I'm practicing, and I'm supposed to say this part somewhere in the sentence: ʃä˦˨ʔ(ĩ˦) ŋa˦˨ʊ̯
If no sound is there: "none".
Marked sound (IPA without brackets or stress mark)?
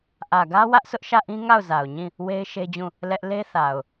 ĩ˦